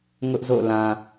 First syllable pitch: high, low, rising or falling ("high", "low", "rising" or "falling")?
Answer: high